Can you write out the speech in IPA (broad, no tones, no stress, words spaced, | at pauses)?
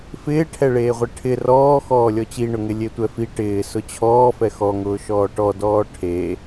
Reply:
fɪːʈʰɛɭeːʁʷɪ ʈʰɪ rɔː xɔːlʲɔt͡ɕiɳʊ ŋɪlʲetʷɛfi ʈɪː sʊt͡ɕʰɔːfɛ xɔŋʊː ʃɔːʈɔdɔː ʈʰe